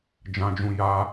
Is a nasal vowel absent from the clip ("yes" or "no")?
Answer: no